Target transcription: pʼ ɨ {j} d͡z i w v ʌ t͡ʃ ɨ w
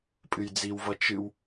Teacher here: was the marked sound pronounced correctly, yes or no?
yes